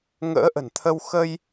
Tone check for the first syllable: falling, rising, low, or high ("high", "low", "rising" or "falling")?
rising